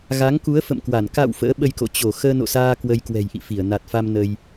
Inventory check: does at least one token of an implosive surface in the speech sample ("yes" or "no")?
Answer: yes